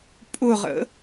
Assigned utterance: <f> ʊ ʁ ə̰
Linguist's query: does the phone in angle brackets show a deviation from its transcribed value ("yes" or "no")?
yes